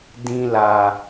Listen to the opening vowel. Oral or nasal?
nasal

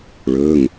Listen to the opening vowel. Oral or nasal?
oral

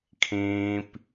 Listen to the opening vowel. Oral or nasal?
nasal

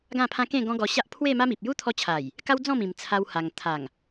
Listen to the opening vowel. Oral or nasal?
nasal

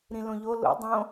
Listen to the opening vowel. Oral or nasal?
nasal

